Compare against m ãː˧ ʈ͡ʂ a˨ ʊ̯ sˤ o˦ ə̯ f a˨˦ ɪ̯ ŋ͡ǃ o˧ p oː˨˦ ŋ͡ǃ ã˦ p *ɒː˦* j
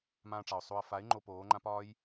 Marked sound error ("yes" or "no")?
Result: no